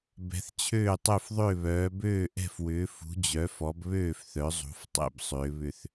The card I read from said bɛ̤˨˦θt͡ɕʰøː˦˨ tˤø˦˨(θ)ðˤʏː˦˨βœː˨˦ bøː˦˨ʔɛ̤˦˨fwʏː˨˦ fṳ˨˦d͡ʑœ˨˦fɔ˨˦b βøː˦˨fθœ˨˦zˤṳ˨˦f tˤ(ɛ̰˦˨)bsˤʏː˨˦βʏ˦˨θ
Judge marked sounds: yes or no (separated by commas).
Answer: no, yes